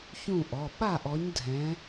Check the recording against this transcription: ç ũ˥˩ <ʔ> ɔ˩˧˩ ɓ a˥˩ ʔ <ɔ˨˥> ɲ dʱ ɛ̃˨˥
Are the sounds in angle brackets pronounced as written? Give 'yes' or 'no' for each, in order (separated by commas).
yes, yes